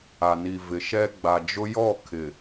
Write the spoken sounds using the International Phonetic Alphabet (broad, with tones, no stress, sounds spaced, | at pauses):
a˨ n i˨ v ɪ˨ ʃ ɛ˦ ɡ͡b a˨ d͡ʒ ʊ˦ j ɔ˦˨ kʰ ɪ˨